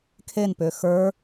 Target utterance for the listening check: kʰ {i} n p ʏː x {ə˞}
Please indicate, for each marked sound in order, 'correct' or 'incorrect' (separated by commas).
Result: incorrect, correct